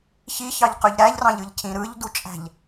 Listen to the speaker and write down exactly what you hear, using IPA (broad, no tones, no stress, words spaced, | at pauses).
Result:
çiçɑʎqøʎ ɾæʎrɑ̃ʎɯʎcʰĩ ɾɯʎdut͡ʃʼæ̤ʎ